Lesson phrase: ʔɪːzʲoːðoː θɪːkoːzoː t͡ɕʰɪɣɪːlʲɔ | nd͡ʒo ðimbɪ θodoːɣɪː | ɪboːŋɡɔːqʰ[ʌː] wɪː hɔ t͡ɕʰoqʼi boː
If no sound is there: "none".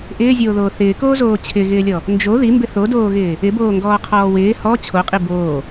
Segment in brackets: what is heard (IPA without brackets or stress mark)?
ɔː